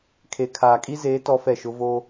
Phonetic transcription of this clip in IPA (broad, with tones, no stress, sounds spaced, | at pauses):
kʰ e˨ kʰ aː˨ kʼ i˦ z eː˨˦ t ɔ˦ f ɛ˦˨ ʃ ʊ˦ v o˦